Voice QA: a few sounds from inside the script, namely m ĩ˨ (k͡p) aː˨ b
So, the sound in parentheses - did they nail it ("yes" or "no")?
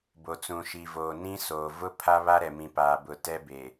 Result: no